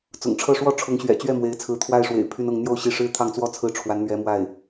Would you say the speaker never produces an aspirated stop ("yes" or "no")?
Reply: no